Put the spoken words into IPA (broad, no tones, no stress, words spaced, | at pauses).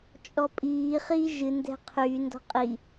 t͡ʃʼɔpʼiː χiːʒɨ ndɛ̤qʰyː ndɔ̤qʼi